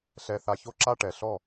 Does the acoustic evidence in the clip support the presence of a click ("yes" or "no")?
yes